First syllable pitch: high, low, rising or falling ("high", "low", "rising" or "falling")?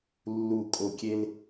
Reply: low